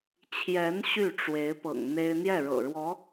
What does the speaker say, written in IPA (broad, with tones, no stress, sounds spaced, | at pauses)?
t͡ɕʰ j ɛ˧˥ n ɕ y˥˩ ʈ͡ʂ w e˧˥ ɪ̯ p ɤ̰˨˩ ŋ n̪ e˥ ɪ̯ n̪ j ɛ˥˩ ɻ ɤ̰˨˩ ɻ w ɔ˧˥